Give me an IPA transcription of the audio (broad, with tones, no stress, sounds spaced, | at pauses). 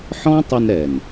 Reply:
ħ ɔ̃˦ tˤ ə˧ n ɾ ɛ˨ n